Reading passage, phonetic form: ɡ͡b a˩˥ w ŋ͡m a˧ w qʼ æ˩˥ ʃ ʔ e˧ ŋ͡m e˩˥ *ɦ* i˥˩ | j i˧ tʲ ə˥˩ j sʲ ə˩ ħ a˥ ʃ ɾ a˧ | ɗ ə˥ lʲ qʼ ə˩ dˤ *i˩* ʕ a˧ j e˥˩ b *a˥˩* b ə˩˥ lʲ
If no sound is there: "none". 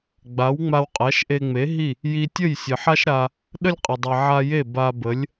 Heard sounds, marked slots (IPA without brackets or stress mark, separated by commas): ɦ, i˩, a˧